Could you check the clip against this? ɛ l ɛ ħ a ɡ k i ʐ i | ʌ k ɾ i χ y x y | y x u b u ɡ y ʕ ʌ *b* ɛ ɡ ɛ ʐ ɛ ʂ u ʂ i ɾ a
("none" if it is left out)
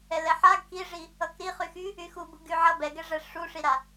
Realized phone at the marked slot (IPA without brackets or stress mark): b